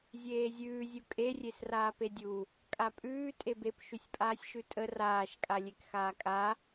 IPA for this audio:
zʲ eː zʲ ʉː zʲ u kʼ e rʲ e s r aː p e dʲ u | kʼ a pʼ ʉː tʼ e b e p ʃ ʉ sʲ pʼ aː sʲ ʃ ʉ tʼ ə r aː ʃ kʼ a lʲ e k x aː kʼ a

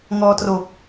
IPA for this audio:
ŋ ɔː˧ t r o˨˩ k̚

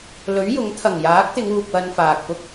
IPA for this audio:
l ɵ˨˥ ɥ j ʊ˨˥ ŋ t̪ʰ ɐ˨˩ ŋ j aː˨˥ k̚ t̪ ɪ˨˧ ŋ uː˨ k̚ w ɐ˧ n f aː˨ k̚ p ʊ˥ k̚

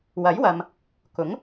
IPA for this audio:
w ɐ˨˥ j w ɐ˨ m | k ʊ˨˥ ŋ

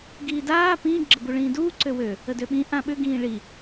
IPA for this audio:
ɡ iː d aː p ĩː ɡ͡ǁ ə b u ɭ ĩː d uː ǀ ø w ø | ə d ø ɓ ĩ ʔ ã ɓ ʏ ɡ ĩː ɭ i

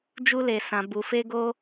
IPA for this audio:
d͡ʒ u˦ l e˧ s ã˧ b u˧ f e˦ ɡ o˦

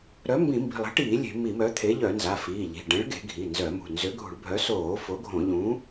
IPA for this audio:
ɾ œ˨˥ m b ĩ˧˩˧ m b i̤˩˧˩ lˠ e̤˨˥ ʈ iː˧˩˧ lʲ e̤˧˩˧ m i˧˩˧ m œ˨˥ t̪ʰ e˨˥ ʎ œ˧˩˧ n z a˩˧˩ f iː˩˧˩ ʎ i̤˩˧˩ ɖ ɛ̃˨˥ ɭ ɡ e̤˧˩˧ ɡʱ i˩˧˩ n z œ˧˩˧ m ṳ˩˧˩ n z ø˨˥ ɡʱ ṳ˧˩˧ ɭ bʱ œ˨˥ s oː˧˩˧ f o˨˥ ɡʱ õ˧˩˧ ʎ ũ˨˥

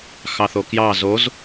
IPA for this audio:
x ɑ θ o k j ɑ z o z

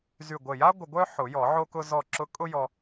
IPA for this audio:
z y˧˩ ɡʷ ə˧˩ j a˥ ɡʷ ə˧ ɡʷ œ˥ ħ ʊ˨˩˦ j ɔ˨˩˦ ʕ o˧ k ʊ˧ z ɔ˧˩ ǁ ʊ˧ kʼ ʊ˥ j ɔ˧

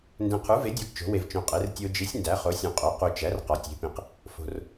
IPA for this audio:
n d ẽ˨ qʰ u˩˥ v e˩˥ dʲ ɒ˩˥ ɡ t͡ʃ o̤˩˥ w e˨ v t͡ʃ õ˨ qʼ e˩˥ r tʲ o˨ d͡ʒ i˩˥ sʲ n d æ˩˥ χ o˩˥ sʲ õ˨ qʼ o˩˥ q u˨ t͡ʃ æ˩˥ r q ɒ˩˥ tʲ e̤˩˥ p ĩ˨ q | f o̤˨ r

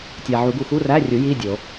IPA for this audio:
tʲ æ˨ ʕ u˨˩˦ ɡ u˨ x u˧˥˧ r æ˧˥˧ rʲ u˨˩˦ j i˧˥˧ dʲ o˨˩˦

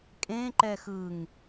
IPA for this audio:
kʼ ẽ ǃ ɛ x ɯ ŋ

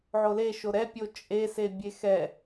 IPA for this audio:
ʕ o l e ʃ o ɾ ɛ pʲ o t͡ʃʼ e s e bʲ e x ɛ

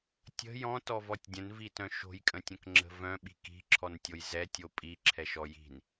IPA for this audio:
tʲ ə̤ j ɔ̃ t ɔ v ɔ tʲ dʲ ə̃ n v i t œ̃ ʃ o̤ j kʼ ə̃ tʲ ə̃ k ŋ͡ǁ ə̤ v œ̃ ɓ i̤ k i̤ ǁʰ ɔ n tʲ o j z ɛ tʲ o pʼ i ǁʰ ɛ ʃ ɔ j i̤ n

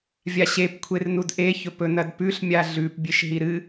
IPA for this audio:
vʲ a ɕ e p kʷʰ e r n u d ʔ e ç ɵ p ɵ n ɐ d p ʉ ɬ mʲ a ɮ ʉ p bʲ e ʃ ɦ i ɾ ɨ

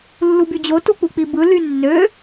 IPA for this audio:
lː u b y d͡ʑ o t u k͡p u k͡p i b ɯ l y nː ø

